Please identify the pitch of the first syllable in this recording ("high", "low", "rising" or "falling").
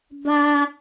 high